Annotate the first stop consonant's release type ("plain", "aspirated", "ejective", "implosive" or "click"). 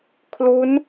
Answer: aspirated